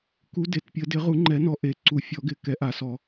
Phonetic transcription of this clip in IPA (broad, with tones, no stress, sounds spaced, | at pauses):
k u˨˦ d e˨˩˦ t pʲ ə˨˩˦ d ɪ˨˩˦ ʁ u˨˩˦ ŋ͡ǃ ɛ˨˩˦ n ɔ˨˩ ʔ e˨˩˦ ǀ u˨˩˦ fʲ ɔ˨˩˦ ɡ ɪ˨˩ k ɛ˨˩˦ ʔ a˨˩˦ s ɔ˨˩˦